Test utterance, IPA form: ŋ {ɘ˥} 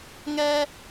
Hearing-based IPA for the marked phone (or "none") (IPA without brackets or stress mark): ɛ˥